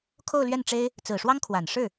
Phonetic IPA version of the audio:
kʰ o˥˧ ʊ̯ l ɥ ɛ˥˩ n ʈ͡ʂ e˥ ɪ̯ | t͡s ɹ̩˨˩ ʂ w ɑ˥ ŋ kʰ w a˨˩ n ʂ ɻ̩˥˩

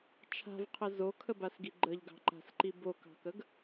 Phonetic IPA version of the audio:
t͡ʃʰ a̤ v qʰ ə z o kʰ ə b a s ɡ i ɡ͡ǃ ə ʎ ɡ ɑ̤ ǃ a̤ s ǃ i b o k ɑ̤ k ə ɡ

